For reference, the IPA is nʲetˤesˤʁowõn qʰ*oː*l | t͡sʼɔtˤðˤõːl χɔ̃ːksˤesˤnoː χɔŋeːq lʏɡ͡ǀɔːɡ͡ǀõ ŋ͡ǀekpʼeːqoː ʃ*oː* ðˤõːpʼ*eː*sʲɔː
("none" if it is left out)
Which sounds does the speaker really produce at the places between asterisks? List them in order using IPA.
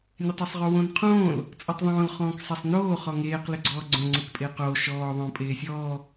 õː, ɔː, eː

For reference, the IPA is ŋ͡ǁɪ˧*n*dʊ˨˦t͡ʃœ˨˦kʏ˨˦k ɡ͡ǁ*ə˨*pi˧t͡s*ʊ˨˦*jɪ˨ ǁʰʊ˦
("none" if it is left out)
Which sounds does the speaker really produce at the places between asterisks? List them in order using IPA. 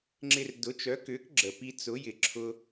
r, ə˨, ʊ˨˦

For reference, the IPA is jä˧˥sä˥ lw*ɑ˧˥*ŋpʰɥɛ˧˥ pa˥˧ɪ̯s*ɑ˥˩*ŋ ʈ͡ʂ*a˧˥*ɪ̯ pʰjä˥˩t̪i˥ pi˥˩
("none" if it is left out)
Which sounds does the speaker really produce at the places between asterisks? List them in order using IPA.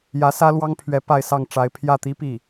ɑ˥, ɑ˥˩, a˧˥

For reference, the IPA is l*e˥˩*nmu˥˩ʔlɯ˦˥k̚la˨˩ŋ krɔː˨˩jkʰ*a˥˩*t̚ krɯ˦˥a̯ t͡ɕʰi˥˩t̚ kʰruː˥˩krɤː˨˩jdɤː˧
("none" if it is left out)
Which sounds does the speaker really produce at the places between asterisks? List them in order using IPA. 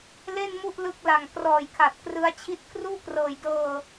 e˥˩, a˨˩

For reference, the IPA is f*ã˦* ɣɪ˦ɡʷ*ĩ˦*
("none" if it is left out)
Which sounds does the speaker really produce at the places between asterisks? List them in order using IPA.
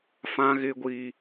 ã˦, i˦

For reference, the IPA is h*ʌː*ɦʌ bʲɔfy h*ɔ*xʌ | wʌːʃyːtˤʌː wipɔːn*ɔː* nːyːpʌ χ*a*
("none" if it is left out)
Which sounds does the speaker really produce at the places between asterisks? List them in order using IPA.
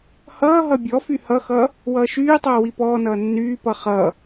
ʌː, ʌ, ʌː, ʌ

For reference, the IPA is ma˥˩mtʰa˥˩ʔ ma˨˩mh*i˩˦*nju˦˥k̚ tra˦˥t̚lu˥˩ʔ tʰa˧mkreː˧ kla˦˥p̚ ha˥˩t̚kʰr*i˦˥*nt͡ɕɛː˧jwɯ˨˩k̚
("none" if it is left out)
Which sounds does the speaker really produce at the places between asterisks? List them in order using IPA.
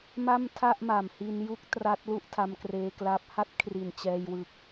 i˧, i˨˩

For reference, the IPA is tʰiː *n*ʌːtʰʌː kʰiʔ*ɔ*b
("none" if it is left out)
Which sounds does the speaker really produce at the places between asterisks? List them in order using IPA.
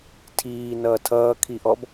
n, ɔ

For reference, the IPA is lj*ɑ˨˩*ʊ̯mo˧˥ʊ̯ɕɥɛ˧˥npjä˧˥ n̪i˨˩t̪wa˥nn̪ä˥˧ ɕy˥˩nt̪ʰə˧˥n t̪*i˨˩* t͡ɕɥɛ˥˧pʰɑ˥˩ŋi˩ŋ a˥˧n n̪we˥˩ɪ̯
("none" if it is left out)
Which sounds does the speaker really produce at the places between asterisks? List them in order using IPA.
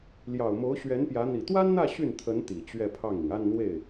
ɑ˨˩, i˨˩

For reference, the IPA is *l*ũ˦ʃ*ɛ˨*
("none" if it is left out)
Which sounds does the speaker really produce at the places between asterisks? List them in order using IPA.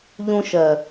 ʎ, ɜ˨

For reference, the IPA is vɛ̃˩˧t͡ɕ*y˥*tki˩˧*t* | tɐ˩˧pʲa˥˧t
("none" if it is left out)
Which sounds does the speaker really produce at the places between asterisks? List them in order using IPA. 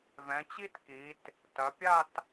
i˥, t

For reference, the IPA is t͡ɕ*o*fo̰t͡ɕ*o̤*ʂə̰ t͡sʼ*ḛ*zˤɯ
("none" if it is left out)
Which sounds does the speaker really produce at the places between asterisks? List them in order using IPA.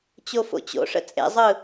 o, o̰, ḛ

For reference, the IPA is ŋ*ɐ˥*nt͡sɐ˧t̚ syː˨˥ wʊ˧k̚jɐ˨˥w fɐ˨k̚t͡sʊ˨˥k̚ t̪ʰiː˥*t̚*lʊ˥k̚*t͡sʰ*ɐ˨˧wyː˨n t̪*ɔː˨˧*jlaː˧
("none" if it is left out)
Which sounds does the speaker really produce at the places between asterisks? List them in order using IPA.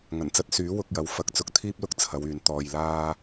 ɐ˨˩, p̚, t͡sʰ, ɔː˨

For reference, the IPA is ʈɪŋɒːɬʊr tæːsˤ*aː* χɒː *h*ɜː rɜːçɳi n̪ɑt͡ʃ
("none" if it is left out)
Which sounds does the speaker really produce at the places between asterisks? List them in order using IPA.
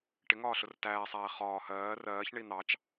æː, h

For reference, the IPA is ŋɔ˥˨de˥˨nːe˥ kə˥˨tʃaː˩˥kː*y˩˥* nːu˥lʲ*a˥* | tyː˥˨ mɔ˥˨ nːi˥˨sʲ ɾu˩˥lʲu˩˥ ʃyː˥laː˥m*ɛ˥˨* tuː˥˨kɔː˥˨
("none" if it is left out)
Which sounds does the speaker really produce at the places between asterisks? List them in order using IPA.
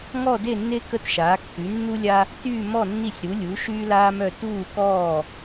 y˩˥, a˥, œ˥˨

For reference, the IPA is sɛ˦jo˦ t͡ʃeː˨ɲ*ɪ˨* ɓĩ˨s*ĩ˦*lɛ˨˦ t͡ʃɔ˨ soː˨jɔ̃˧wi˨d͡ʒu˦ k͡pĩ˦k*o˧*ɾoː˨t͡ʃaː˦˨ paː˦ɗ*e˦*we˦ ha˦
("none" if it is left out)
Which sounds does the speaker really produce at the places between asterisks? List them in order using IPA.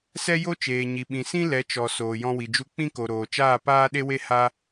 i˨, ĩ˦, o˨, e˦

